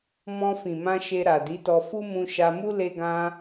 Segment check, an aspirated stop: absent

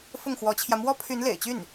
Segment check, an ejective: absent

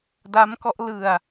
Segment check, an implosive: absent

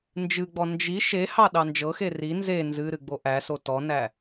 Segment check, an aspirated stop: absent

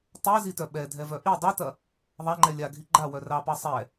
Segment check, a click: present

